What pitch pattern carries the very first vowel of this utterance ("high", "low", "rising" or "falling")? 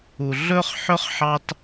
low